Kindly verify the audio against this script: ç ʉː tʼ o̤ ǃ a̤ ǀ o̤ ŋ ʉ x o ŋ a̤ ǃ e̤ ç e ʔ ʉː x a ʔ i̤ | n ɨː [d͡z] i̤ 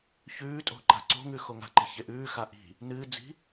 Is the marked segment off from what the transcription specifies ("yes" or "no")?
no